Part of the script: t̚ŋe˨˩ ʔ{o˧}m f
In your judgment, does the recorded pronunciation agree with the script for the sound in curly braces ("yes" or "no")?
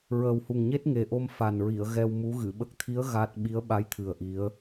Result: yes